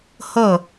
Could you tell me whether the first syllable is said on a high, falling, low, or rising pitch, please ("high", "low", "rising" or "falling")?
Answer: falling